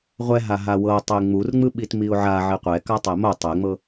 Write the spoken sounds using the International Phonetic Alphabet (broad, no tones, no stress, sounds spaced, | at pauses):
ʁʷ ɛ ɦ a ɦ a w ɤ tˤ e ŋ͡m u r ŋ͡m ɯ ɓ i t m i ʊ̯ ʕ a ʕ i qʷ ɛ k a tˤ ɛ m o tˤ ɛ ŋ͡m ɤ